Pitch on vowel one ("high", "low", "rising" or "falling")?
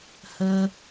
high